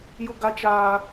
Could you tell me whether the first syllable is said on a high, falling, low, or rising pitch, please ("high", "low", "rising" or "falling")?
high